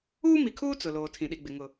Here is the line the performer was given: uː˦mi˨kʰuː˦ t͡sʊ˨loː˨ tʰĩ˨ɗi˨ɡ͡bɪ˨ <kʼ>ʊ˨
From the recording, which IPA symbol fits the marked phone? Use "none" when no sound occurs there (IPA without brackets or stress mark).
ŋ